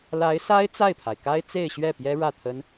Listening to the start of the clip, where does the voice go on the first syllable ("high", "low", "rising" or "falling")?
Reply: rising